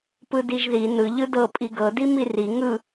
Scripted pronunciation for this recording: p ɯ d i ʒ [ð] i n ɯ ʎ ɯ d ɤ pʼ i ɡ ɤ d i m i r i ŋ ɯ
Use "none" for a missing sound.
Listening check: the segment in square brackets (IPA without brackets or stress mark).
ð